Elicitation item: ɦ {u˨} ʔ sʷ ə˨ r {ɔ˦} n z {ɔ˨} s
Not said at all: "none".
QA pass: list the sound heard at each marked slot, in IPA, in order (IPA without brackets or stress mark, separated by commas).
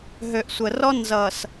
ø˨, ɔ˦, ʌ˨